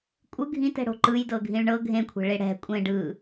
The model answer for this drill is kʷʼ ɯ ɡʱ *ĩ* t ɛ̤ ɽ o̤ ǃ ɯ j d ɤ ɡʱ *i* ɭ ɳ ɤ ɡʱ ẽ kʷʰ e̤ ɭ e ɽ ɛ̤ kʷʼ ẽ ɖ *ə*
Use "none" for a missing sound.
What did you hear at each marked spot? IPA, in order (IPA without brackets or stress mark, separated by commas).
ĩ, ĩ, ɯ